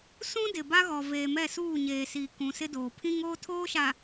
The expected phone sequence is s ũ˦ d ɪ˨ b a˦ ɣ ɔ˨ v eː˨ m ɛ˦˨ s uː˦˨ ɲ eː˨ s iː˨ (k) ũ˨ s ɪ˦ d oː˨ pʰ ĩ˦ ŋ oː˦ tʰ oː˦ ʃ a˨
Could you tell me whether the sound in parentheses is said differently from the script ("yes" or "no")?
no